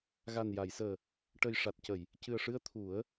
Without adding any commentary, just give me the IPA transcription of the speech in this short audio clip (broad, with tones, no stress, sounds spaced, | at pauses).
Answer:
ɣ a˨˩ n j a˨˩˨ j s əː˨˩ | ʈ ə˨˩ j ʂ a˨˩ t̚ c ə˨˩˨ j | c ɨ˨˩ ə̯ ʂ ɨ˧ ə̯ t̪ʰ u˨˩˦ ə̯